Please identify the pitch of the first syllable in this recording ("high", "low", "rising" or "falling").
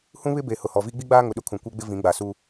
high